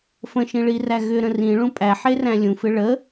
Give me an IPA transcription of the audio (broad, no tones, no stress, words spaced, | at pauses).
fə̃ʃĩɭiræ ɣʏɾə̃ rĩɭũ pʼæħeræ̃ lʲũfɪ ɭə